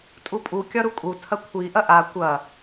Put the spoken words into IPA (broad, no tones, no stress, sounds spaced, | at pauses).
tʼ u pʼ u kʲ ɒ ɾ u kʼ u tʰ ɐ kʷʰ i ʔ ɐ ʔ a kʷ ɐ